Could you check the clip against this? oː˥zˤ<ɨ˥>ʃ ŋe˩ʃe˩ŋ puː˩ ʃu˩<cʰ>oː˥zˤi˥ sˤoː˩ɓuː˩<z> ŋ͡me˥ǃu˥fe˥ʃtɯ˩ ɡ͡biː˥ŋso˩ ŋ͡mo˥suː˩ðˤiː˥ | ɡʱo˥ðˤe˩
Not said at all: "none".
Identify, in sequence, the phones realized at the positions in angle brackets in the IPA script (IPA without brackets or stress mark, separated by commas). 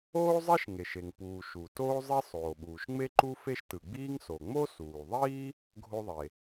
ɛ˥, t, ʃ